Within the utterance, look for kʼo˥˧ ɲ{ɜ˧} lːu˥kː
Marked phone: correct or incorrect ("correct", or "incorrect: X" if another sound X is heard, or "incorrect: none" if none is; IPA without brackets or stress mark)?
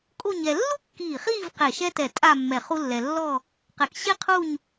incorrect: ɛ˧